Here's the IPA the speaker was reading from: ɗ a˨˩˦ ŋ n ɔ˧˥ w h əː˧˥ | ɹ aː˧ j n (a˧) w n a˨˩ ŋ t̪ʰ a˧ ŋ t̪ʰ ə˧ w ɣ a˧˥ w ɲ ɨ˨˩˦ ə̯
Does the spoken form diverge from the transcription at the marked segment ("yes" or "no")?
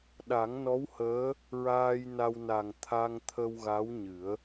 no